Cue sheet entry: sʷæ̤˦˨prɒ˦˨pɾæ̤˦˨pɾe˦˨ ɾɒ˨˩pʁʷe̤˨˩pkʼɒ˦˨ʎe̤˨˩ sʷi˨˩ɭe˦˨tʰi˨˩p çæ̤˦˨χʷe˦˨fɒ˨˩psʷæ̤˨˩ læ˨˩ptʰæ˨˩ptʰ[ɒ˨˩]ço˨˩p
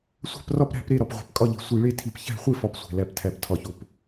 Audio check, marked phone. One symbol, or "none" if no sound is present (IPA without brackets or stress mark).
ɒ˨˩